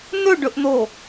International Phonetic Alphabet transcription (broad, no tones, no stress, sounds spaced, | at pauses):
n ɵ ɖ ɵ ʔ n̪ o